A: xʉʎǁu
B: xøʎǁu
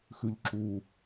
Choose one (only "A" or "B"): A